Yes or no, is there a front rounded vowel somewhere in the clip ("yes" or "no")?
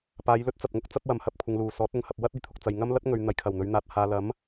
no